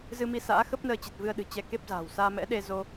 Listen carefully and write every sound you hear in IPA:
z ɨ˧ m i˧ s a̰ː˧˥ x ə˦˥ p̚ n əː˧ t͡ɕ i˨˩ t̚ v ɨ˧ ə̯ ɗ ɨ̤˨˩ t͡ɕ ɛ˧ k e˦˥ p̚ z a̤ː˨˩ w s aː˧ m ɛ̰˧˥ ɗ e˧ z o˧

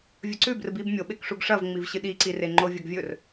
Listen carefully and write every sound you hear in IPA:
vʲ ɵ ǀ ʉ b r ɨ b i b mʲ o ɓ e k ʂ u ɡ ʂ ɐ v ŋ͡m i v ɕ ɨ ɗ i ǀ i r e ŋ͡ǃ o vʲ ɐ ɡ vʲ ɵ r

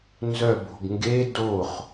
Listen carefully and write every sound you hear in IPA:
n z œ b o̤ ɡ ŋ ɡ e d o χ

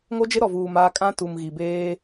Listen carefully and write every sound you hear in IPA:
ŋ o˦ d͡ʒ ɪ˦ ɾ ɔ˨ v uː˨ m aː˦ kʼ ã˦ t u˨ m ɣ i˨ b eː˦

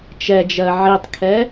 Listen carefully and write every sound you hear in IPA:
t͡ʃ ɛ d͡ʒ ɜ ʕ i tˤ kʰ ɛ

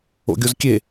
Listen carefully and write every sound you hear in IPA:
o̰ ɡʲ o z kʲ e

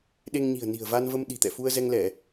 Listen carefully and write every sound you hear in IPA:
ɗ e˧ ŋ ɲ i̤˨˩ ə̯ n i̤˨˩ ə̯ v a˧ n v ə˧ m ɗ i̤˨˩ t̪ ɛ̰˧˨ f u˧ ə̯ z ɛ˧ ŋ l ɛ˧˩˨

